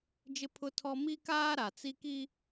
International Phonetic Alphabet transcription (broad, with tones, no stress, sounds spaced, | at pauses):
d͡ʒ ɪ˦ pʰ ʊ˦ tʰ ɔ˦ m i˦ k aː˦ ɾ a˨ t͡s i˦ k i˦